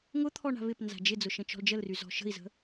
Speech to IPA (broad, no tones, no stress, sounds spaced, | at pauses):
ŋ ʊ t̪ʰ ɔ ɳ a̤ β ɪ p n z a̤ d͡ʒ ɪ d͡z ʊ ʃ ə̃ t͡ʃ ɔ̤ l d͡ʒ ə l r y z ɔ̤ ʃ ə̤ i̯ z ə̤